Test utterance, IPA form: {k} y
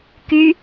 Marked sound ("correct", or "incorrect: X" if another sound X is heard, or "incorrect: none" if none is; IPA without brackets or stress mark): correct